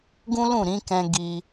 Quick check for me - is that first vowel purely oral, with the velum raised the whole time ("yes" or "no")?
no